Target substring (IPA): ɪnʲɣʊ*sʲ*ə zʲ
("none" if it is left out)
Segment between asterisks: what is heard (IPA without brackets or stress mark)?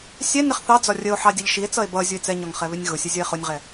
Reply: sʲ